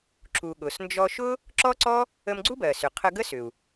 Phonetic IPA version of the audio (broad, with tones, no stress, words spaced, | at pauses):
ǁu˩ ɠʊ˩snd͡ʒɔ˧ʃʊ˥ | ǁɔ˥ǀɔ˥ | ə˧mɡ͡ǀu˥bɜ˩sʏ˩ qʰə˧ɡə˥ sʏ˩u̯